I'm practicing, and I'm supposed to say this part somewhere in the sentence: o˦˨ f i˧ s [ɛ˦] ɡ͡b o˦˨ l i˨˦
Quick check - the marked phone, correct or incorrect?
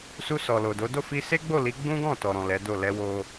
incorrect